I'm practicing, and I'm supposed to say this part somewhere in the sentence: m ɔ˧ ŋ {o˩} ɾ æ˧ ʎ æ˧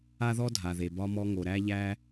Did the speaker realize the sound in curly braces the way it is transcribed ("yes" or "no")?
yes